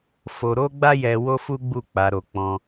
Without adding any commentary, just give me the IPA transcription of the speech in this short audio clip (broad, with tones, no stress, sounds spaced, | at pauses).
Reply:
f o˧ ɾ o˦ ɡ͡b a˦ j ɛ˧ w o˦ f u˦ ɡ͡b u˦˨ k͡p a˨˦ ɾ o˧ k͡p ɔ̃˧